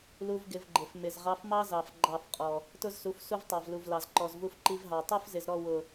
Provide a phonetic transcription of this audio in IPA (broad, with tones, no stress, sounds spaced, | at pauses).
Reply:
l u˦ v ɡ ɪ˧ v ɡ͡ǃ ɪ˨ f m ɪ˨ z ʁ ɑ˧ f m ɑ˦ z ɑ˨ f ɡ͡ǃ ɑ˦˨ f qʼ ɔ˨ | t ʊ˦ z s u˨˦ f s u˦ v tˤ ɑ˨ v l u˨ v l ɑ˨ z ǃ ɔ˨ z v u˧ f ǃ i˧ v ɦ ɑ˨ tˤ u˦ f z ɪ˨ z ɾ ɔ˦˨ w ʊ˨